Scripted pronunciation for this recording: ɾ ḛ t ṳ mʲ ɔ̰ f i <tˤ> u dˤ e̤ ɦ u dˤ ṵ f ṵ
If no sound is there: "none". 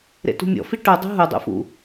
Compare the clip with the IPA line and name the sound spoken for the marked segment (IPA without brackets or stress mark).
ʈ